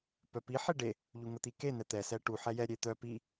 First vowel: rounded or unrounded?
rounded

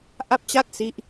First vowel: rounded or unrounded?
unrounded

